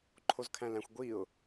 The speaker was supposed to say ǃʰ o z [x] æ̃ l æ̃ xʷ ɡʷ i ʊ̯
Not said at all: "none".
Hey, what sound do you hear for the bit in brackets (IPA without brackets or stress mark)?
kʰ